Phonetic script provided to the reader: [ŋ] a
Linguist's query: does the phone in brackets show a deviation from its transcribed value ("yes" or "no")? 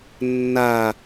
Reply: yes